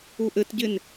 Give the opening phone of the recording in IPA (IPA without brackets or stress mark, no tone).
u